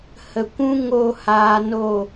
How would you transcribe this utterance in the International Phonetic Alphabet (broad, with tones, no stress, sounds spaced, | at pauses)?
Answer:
h ə˨ kʷ ũ˦ ŋ o˦˨ h aː˧ n o˦˨